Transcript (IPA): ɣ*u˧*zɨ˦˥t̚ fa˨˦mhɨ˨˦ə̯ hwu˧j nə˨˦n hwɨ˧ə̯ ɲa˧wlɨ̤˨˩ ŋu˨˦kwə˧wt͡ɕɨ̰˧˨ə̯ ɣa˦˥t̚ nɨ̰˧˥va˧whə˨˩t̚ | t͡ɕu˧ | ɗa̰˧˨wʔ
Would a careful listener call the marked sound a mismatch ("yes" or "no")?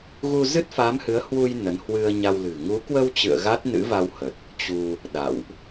no